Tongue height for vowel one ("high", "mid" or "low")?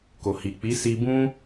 mid